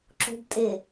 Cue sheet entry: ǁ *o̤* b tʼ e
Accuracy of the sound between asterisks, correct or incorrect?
correct